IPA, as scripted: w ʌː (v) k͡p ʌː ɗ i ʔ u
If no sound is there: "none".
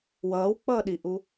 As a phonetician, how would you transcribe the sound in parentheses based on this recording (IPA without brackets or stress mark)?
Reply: w